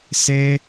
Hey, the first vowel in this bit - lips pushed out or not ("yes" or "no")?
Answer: no